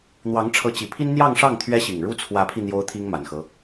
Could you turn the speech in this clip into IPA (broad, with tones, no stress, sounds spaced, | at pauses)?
n̪ w ɑ˧˥ ŋ ʈ͡ʂʰ ɤ˧˥ t͡ɕ i˨˩ pʰ i˥ n n̪ j ɑ˥˧ ŋ ʂ ɑ˥˩ ŋ t̪ʰ ɥ ɛ˥ ɕ i˨˩ ŋ ɻ u˥ t͡sʰ w ä˧˥ pʰ i˧ n̪ j o˥ ʊ̯ t̪ʰ i˥ ŋ m a˨˩ n x ɤ˦